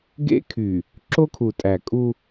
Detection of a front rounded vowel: present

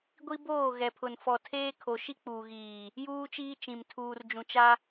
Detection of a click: absent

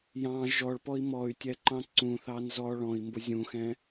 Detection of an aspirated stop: absent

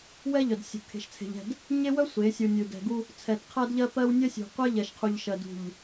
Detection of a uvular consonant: present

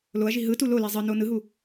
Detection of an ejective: absent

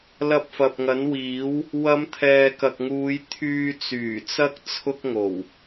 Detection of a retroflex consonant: absent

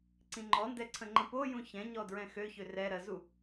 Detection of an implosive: absent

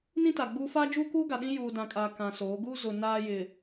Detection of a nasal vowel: present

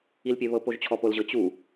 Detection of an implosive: absent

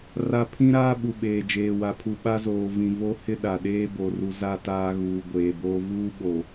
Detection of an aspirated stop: present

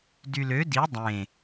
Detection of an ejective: absent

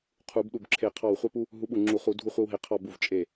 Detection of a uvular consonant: present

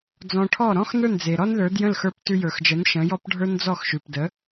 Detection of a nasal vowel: present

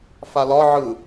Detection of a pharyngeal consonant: present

